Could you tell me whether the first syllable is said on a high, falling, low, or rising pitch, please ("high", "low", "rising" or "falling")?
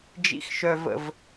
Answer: low